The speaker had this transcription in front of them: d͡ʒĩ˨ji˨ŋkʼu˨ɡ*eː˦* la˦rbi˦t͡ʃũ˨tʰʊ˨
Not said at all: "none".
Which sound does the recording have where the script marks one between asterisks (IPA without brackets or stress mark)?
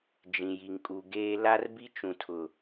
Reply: eː˦